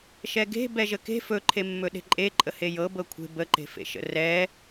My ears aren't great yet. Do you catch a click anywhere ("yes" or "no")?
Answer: yes